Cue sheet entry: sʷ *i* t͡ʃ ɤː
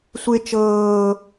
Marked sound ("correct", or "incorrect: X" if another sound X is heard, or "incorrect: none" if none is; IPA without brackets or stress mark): incorrect: e